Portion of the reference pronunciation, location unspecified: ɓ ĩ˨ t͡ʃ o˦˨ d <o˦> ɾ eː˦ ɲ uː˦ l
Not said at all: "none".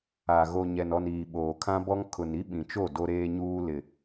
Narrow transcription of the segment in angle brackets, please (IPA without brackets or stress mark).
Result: o˦